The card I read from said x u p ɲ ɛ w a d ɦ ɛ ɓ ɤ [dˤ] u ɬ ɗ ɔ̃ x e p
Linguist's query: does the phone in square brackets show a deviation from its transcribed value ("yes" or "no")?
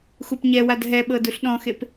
yes